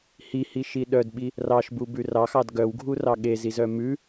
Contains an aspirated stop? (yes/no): no